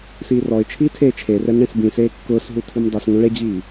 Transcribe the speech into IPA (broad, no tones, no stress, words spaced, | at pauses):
siːrɔɪ̯t͡ʃʰiː tʰeːt͡ʃʰerɛm ɳẽsbĩseː kːʊːsɦu tʰimdˤisŋũ ɭed͡ʑiː